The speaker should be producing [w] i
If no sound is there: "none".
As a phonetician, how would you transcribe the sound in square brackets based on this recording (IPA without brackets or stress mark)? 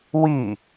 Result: w